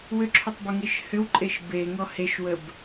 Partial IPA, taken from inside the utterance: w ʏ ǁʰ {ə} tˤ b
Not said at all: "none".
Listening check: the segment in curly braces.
ʏ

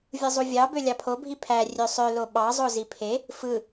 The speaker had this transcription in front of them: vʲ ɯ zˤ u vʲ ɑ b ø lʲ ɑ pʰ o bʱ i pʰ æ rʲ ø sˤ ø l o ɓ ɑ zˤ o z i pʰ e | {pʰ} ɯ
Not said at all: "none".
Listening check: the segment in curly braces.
f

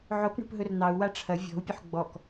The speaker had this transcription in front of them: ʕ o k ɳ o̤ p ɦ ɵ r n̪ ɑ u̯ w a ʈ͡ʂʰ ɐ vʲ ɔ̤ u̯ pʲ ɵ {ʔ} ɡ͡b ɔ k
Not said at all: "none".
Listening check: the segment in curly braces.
ħ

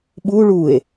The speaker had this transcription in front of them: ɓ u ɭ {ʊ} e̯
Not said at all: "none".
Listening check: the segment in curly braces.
u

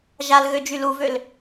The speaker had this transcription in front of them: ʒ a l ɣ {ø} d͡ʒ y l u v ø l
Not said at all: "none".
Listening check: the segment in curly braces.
ø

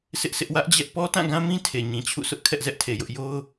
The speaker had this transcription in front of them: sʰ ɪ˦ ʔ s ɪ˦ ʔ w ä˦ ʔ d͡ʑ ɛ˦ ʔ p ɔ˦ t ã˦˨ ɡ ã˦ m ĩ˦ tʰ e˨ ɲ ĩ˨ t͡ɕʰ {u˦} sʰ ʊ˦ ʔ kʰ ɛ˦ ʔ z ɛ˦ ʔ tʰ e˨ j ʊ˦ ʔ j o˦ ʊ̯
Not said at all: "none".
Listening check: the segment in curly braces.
ṵ˦˨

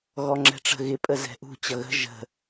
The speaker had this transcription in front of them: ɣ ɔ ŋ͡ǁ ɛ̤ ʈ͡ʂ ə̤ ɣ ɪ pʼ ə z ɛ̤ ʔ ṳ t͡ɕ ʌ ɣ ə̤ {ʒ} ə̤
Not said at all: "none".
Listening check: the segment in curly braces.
ʒ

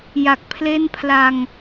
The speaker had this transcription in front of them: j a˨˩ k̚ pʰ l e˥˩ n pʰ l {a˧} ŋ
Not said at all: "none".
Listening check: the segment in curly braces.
a˧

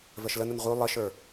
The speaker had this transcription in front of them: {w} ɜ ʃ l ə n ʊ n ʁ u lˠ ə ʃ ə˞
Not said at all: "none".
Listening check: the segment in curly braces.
v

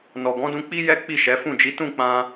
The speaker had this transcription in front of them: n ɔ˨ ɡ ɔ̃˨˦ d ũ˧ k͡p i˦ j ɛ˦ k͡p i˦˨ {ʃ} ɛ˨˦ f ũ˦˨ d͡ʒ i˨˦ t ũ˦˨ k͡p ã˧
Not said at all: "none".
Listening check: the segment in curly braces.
ʃ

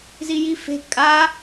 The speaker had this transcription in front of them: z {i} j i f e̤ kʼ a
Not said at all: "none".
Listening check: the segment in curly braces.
i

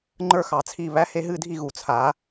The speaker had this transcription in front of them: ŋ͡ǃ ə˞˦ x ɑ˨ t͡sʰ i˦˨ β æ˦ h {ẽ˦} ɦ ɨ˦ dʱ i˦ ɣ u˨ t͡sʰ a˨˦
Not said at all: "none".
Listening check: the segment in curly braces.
e˦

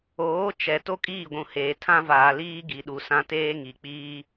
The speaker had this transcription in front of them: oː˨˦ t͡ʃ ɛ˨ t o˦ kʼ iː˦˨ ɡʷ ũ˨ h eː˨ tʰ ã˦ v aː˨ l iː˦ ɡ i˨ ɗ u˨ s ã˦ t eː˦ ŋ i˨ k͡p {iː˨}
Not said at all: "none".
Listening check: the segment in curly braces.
iː˦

